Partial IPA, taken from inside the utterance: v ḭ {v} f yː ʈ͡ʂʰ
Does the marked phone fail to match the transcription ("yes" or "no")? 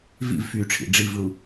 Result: no